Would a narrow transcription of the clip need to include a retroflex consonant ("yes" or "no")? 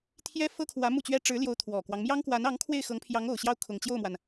yes